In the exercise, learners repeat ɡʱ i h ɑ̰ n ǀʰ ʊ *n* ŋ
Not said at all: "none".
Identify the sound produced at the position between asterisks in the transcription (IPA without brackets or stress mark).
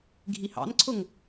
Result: none